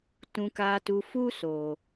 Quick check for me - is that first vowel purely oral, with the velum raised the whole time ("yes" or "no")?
no